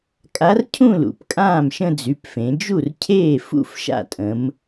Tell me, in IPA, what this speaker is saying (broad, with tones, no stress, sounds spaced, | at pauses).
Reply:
kʼ a˧˥ r cʰ ũ˥˧ l ṵ˩˧ p kʼ ãː˥˩ m ʃ ə̃˥˧ d͡z y˩˧˩ p f ẽ˩˧ d͡ʒ u˥˩ r cʰ eː˥˩ f ṵ˥˧ f ʃ a̰˥˩ tʼ ə̃˩˧ m